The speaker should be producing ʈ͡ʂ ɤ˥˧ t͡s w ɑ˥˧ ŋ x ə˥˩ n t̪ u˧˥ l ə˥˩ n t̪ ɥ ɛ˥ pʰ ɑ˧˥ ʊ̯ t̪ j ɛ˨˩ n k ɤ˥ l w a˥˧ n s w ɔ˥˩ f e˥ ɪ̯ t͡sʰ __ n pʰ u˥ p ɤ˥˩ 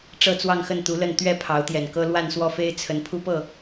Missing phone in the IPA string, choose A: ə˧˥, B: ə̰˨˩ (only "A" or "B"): A